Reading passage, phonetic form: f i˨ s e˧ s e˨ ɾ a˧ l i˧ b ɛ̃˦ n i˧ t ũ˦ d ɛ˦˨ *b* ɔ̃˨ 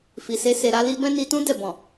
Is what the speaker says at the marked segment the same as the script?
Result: yes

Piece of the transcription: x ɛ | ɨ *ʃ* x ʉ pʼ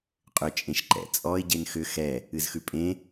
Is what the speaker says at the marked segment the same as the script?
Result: no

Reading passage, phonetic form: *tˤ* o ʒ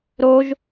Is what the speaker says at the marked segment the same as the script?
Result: no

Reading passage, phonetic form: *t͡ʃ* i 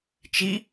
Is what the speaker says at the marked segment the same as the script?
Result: yes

